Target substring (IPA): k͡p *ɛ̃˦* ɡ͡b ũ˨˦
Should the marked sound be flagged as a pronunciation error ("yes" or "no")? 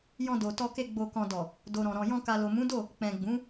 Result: yes